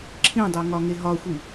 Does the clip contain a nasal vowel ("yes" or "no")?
yes